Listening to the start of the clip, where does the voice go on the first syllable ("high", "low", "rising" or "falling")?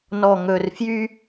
low